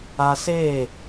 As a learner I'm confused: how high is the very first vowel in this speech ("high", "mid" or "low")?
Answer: low